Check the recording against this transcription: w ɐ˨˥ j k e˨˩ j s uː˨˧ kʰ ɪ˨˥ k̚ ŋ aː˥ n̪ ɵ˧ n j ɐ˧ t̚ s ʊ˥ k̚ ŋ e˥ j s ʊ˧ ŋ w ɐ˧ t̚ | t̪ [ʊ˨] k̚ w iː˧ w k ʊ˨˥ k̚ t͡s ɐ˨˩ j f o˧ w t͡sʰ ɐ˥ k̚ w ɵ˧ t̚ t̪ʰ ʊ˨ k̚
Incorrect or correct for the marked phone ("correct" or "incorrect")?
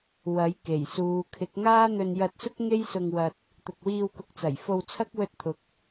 correct